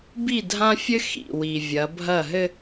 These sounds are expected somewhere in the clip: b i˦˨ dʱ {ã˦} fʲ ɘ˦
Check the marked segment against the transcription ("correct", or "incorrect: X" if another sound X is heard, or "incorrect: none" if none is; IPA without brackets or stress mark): correct